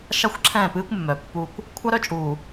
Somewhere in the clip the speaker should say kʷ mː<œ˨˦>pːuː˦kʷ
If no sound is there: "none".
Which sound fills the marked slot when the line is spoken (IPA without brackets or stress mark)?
œ˨